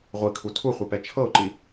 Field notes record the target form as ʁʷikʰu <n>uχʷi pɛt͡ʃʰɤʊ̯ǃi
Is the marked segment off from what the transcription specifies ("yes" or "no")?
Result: yes